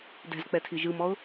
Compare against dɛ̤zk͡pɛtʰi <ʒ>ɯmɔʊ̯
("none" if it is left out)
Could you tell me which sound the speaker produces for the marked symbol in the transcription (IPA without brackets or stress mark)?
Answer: ʒ